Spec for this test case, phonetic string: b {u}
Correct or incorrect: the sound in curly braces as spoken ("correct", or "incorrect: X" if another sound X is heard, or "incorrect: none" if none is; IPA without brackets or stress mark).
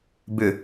incorrect: ʏ